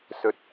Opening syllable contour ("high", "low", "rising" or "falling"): rising